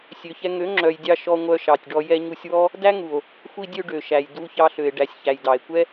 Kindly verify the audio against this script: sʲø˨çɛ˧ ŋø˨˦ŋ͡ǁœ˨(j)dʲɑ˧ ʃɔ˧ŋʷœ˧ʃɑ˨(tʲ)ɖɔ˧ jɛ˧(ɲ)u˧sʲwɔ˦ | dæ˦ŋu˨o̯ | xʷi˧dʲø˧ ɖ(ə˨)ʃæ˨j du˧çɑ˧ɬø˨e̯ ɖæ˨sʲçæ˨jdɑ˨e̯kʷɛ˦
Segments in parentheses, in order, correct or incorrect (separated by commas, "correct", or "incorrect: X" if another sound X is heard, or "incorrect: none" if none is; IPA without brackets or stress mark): correct, correct, correct, incorrect: ø˨